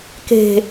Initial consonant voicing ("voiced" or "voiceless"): voiceless